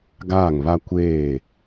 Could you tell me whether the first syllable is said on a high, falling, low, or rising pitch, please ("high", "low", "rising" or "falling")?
falling